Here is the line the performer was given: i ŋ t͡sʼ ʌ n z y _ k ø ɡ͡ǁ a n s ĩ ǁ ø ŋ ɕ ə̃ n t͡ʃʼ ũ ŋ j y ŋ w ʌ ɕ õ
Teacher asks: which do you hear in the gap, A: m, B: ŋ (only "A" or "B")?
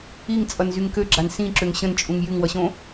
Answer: B